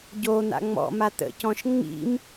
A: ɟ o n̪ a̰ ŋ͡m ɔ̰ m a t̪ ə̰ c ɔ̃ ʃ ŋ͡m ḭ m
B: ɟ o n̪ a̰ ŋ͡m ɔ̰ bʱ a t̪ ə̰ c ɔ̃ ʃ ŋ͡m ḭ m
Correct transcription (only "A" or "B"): A